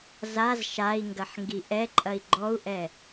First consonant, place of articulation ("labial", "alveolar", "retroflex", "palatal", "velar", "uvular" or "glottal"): alveolar